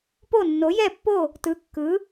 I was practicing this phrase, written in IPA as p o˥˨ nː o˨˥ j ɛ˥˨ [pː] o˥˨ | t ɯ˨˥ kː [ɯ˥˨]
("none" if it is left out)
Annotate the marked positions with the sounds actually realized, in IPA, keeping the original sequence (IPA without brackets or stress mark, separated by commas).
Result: pː, ɯ˨˥